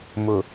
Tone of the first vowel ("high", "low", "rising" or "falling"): low